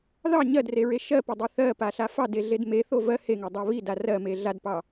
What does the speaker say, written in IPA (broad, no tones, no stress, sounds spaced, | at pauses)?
ð ɑ ɲ ɜ d r e ɹ e ʃ ɜ p e dˤ i θ ɜ p a ɬ a f ɑ d e ɮ e d m e θ o v ɜ h e ŋ e dˤ a β i d a r ɜ m e ɮ a d p ɑ